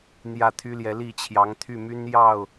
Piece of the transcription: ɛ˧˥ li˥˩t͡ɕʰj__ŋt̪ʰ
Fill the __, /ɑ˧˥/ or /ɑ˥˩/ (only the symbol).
ɑ˧˥